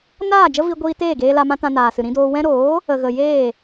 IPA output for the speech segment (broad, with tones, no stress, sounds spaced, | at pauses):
n aː˦˨ d͡ʒ ə˦ v i˧ ɡʷ iː˧ t eː˦˨ ɡ eː˧ l a˧ m ã˦ t ã˧ n aː˨ s ɨ˨ ɾ ĩ˧ d oː˧ w ɛ̃˧ ɾ oː˨˦ | ə˨ ɣ ə˨ j eː˦˨